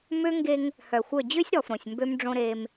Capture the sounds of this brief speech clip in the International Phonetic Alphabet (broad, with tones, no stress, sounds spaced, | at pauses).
m ø˦ ŋ ɡ e˦ ŋ | h œ˨ xʷ œ˦˨ d͡ʑ ø˦ sʲ ɾ ɔ˨ f ɾ õ˨ sʲ m b ø˦ m ɖ͡ʐ õ˦ ɾ eː˦ m